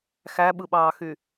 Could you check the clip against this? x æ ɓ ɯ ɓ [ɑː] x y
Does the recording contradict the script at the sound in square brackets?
no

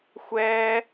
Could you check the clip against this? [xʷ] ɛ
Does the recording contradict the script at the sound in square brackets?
no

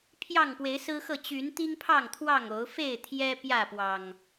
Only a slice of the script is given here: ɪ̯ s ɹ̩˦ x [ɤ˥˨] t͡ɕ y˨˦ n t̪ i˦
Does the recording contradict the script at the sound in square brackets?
no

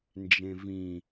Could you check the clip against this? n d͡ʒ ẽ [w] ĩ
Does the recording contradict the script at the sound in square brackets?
yes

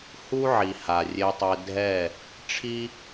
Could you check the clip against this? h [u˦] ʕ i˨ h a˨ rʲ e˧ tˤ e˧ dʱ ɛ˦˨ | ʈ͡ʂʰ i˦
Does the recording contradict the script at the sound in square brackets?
no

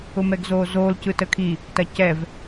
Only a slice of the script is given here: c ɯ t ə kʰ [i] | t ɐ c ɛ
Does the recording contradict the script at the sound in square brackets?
no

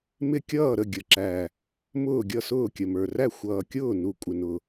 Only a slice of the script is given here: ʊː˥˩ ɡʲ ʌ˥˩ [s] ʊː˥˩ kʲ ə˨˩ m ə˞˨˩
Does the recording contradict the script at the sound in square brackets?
no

